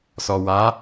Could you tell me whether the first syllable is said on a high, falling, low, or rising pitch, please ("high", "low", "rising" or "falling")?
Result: low